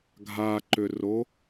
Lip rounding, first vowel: unrounded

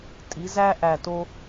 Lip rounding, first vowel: unrounded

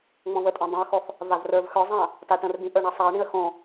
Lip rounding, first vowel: rounded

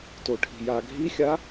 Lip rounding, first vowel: rounded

